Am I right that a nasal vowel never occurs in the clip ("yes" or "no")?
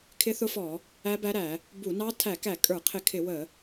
yes